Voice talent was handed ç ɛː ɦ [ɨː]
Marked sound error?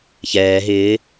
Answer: yes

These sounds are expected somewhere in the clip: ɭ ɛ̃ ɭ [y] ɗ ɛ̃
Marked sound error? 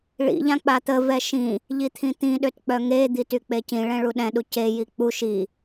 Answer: yes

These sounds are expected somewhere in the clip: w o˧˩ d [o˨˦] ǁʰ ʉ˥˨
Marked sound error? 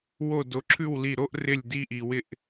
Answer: no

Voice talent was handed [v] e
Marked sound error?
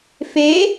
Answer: yes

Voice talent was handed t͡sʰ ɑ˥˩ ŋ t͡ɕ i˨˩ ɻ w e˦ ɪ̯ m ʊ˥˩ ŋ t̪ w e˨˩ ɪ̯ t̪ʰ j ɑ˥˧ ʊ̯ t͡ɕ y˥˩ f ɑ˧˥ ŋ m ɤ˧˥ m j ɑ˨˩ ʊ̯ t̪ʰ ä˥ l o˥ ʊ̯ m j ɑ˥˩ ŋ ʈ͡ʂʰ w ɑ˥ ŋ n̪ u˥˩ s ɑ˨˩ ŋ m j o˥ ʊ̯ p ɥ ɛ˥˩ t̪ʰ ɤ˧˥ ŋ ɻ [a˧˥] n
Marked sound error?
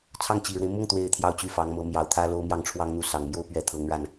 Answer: yes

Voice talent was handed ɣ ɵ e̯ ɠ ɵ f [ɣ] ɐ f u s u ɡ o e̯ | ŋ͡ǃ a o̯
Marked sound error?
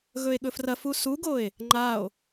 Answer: yes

